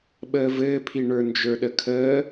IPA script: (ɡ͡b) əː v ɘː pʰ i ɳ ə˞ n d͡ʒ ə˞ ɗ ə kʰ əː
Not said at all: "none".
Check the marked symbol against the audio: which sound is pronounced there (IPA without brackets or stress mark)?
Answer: ɓ